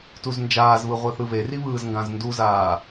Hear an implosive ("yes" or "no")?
no